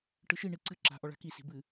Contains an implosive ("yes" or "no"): no